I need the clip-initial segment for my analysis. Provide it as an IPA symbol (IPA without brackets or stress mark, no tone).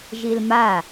ʒ